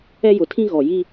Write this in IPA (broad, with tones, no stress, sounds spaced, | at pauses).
ɛ˦ j ʊ˨ tʰ ĩ˦ ɣ ɔ˨ j i˦